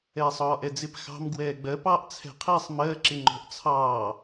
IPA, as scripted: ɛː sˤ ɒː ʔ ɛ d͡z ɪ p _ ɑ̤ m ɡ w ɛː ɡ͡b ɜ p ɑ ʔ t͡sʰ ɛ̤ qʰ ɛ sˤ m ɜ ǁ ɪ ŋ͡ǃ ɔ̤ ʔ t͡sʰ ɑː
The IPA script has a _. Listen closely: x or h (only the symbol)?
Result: x